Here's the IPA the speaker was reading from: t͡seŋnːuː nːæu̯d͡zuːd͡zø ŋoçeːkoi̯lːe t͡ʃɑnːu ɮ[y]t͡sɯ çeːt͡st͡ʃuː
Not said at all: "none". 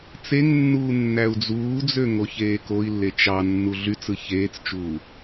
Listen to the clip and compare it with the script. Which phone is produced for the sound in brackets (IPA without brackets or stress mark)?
y